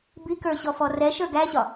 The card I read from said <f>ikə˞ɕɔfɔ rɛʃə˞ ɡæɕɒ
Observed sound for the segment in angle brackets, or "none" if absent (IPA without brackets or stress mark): b